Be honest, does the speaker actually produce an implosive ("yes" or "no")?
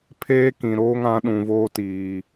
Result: yes